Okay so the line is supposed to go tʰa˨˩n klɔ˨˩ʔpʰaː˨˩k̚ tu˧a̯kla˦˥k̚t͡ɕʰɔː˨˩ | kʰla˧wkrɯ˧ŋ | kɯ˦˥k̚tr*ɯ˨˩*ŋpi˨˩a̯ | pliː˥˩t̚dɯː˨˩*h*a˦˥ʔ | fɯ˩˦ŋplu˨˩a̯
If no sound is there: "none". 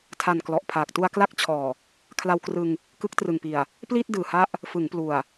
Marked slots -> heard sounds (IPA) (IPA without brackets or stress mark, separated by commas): ɯ˨˩, h